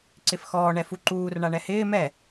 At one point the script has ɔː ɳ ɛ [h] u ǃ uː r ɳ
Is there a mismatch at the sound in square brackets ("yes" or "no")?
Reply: yes